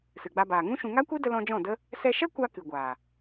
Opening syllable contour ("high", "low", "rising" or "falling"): low